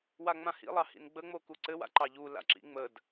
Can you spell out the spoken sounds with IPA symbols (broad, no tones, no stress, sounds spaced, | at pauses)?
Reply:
w a ŋ͡m ã h ḭ lˠ ɑ h ḭ n ɡ͡b ə ŋ͡m o k u ǀ ɘ w a̰ ǃ ɑ ʎ u l a̰ ǁ ḭ ŋ͡m ə d